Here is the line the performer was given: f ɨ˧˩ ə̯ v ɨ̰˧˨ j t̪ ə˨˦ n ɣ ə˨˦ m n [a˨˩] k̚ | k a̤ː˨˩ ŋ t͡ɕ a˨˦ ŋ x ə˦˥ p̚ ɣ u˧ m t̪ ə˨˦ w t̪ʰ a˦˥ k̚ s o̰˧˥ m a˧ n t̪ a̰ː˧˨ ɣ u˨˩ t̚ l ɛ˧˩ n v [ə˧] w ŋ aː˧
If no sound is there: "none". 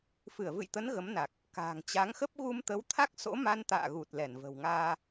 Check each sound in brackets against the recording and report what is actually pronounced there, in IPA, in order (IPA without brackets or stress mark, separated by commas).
a˨˩, ə̤˨˩